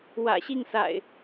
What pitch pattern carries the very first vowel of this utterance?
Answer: low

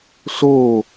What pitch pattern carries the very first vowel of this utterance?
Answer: falling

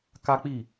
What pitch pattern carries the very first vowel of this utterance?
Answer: high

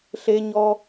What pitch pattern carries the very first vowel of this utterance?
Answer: high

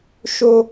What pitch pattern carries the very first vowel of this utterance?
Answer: high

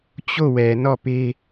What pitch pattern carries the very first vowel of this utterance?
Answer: falling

